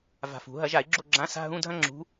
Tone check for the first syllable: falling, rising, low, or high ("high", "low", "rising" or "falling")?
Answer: low